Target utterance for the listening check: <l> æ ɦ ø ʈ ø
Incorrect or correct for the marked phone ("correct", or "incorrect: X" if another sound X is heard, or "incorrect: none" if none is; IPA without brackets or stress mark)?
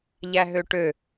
incorrect: ʎ